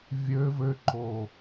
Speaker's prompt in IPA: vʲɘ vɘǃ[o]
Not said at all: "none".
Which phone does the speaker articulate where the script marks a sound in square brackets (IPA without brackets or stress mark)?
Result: o